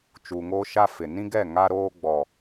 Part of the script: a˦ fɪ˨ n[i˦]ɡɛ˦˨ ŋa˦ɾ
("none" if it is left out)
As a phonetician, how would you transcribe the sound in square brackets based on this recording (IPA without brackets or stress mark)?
ĩ˦